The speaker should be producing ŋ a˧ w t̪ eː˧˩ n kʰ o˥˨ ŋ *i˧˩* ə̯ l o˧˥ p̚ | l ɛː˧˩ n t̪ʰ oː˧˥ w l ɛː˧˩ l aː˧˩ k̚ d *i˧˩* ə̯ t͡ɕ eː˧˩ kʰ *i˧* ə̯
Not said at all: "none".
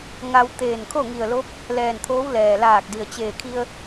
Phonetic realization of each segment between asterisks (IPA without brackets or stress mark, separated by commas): i˧˩, i˩, i˧